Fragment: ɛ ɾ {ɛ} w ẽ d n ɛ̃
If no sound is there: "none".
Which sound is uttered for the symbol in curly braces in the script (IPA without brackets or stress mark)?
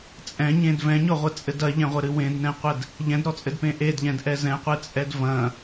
ɨ